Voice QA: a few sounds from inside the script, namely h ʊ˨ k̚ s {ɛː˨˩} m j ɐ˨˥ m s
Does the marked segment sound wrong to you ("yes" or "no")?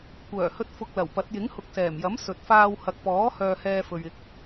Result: no